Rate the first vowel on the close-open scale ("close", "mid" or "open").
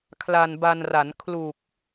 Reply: open